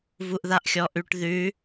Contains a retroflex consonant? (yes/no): yes